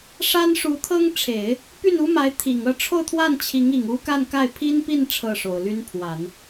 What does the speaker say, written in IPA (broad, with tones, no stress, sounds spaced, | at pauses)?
ʂ a˥ n ʂ u˧˥ t̪ʰ ɤ˥ ŋ ʈ͡ʂʰ e˨˩˦ ɪ̯ | p y˥˩ n u˥ m a˧˥ ɪ̯ t̪ʰ i˨˩ ŋ ɤ˥˧ ʈ͡ʂʰ o˥˧ ʊ̯ t̪ʰ w a˥˩ n t͡ɕʰ i˧˥ ŋ i˨˩ ŋ u˥ k a˥˧ n k a˥˩ ɪ̯ pʰ i˥ n p i˥˧ n ʈ͡ʂʰ ɤ˥˩ ʂ o˨˩ ʊ̯ l y˥ n pʰ w a˨˩˦ n